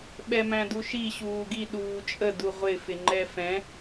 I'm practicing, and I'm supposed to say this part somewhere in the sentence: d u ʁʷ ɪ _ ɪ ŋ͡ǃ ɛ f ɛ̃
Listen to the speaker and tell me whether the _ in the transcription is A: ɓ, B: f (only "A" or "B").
B